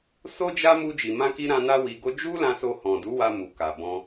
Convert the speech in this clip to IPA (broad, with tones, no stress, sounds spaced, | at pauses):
s o˦ d͡ʒ a˦ m u˦ d͡ʒ i˧ m ã˦ k i˦ ɾ ã˧ n a˦ w i˧ ɡ o˦ d͡ʒ u˦ l ã˧ s o˧ h ɔ̃˨ d u˨˦ w a˧ m u˨ k a˨ b ɔ̃˧